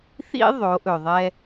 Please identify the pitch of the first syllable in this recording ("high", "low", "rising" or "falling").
high